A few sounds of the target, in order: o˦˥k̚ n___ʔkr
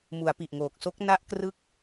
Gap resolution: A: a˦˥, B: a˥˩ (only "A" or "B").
A